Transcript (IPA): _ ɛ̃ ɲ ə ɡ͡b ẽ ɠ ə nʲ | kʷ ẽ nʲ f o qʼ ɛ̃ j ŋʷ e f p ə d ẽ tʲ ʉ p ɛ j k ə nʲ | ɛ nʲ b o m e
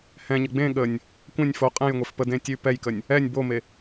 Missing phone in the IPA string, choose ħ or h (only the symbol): h